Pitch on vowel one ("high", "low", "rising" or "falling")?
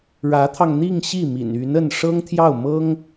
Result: rising